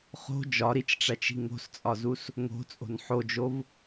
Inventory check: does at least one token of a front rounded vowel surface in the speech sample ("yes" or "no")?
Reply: no